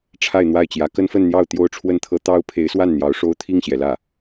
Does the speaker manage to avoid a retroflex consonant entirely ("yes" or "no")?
no